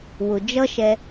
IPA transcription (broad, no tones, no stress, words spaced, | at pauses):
wʊ d͡ʒʌʃɛ